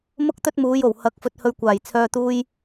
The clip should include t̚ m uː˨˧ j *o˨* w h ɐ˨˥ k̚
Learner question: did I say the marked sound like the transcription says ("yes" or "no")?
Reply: no